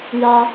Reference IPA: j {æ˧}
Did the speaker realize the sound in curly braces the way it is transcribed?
no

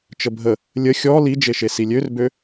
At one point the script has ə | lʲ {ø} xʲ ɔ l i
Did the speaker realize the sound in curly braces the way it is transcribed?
no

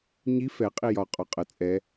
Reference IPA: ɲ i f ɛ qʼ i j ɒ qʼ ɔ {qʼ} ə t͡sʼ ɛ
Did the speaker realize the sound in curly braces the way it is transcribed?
yes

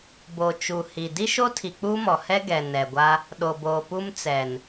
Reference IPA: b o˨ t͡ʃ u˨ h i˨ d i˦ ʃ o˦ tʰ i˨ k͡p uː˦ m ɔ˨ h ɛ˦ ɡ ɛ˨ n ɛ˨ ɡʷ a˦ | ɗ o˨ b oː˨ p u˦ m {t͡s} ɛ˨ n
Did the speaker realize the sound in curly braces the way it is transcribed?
yes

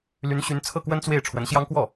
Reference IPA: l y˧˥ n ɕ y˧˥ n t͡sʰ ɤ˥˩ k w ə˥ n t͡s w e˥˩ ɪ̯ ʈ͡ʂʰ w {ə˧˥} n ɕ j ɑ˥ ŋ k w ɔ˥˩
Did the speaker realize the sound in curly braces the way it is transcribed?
yes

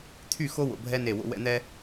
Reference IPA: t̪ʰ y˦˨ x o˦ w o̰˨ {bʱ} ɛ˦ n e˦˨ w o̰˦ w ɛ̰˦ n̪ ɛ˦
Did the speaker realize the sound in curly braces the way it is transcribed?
yes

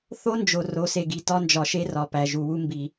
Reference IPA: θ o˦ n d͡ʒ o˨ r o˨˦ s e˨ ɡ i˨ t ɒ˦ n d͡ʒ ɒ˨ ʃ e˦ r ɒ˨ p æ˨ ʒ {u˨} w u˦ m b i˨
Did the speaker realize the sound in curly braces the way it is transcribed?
yes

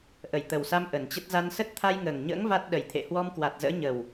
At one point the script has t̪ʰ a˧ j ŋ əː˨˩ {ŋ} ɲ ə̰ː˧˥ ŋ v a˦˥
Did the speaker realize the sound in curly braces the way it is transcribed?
yes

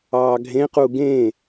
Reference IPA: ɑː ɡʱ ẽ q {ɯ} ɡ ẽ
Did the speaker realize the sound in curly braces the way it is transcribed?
no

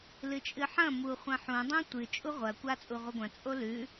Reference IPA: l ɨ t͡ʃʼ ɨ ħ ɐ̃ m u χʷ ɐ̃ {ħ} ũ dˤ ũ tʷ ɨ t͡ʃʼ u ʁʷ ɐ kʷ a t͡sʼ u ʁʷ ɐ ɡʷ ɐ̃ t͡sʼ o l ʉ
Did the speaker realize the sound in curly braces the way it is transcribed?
yes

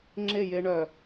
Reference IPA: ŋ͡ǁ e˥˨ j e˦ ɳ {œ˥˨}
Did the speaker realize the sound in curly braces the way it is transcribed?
no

